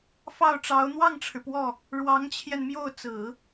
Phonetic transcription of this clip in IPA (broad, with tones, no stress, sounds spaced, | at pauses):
f ɑ˥˩ ʊ̯ ʈ͡ʂ ɑ˧˥ ʊ̯ n̪ w ɑ˥˩ ŋ ʈ͡ʂʰ ɻ̩˩ p w ɔ˥˩ | ɻ w ɑ˧˥ ŋ t͡ɕʰ j ɛ˧ n m j o˥˩ ʊ̯ t͡s ɹ̩˨˩˦